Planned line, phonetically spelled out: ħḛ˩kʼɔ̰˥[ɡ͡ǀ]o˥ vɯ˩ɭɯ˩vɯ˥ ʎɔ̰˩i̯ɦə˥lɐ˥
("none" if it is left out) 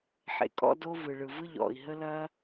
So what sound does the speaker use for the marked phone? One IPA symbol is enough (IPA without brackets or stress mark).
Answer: d